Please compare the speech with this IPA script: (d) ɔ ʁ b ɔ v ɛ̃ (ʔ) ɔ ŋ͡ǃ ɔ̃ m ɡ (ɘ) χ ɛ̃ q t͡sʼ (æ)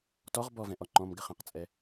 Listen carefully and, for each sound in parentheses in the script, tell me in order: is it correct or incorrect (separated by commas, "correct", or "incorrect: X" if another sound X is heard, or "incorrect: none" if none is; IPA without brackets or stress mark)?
incorrect: t, correct, correct, incorrect: ɛ